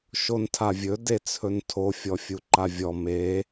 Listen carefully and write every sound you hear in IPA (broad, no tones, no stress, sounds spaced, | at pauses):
ʃ o n tʰ a vʲ ɵ d e t͡sʰ ɵ n tʰ o fʲ ɔ fʲ u ǃ a vʲ ɔ m e